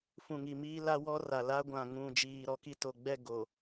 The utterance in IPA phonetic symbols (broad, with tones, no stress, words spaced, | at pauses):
fũ˨ŋi˨miː˦ la˦wɔ˦ra˨ la˦ɡʷã˨ ŋũ˨ d͡ʒiː˨ɾɔ˦ki˦to˨ ɡ͡bɛ˦˨ ɡo˨